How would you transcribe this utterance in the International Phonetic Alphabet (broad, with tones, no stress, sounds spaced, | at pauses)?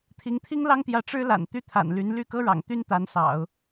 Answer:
t̪ʰ i˧˥ ŋ t̪ʰ i˥ ŋ l ɑ˥ ŋ t̪ j ä˧˥ ʈ͡ʂ ɻ̩˥ l a̰˨˩ n t̪ y˥˩ t̪ʰ a̰˨˩ n l y˧˥ n l y˥˩ k ɤ˥ ɻ ɑ̰˨˩ ŋ t̪ y˥ n t̪ a˧˥ n s ɑ̰˨˩˦ ʊ̯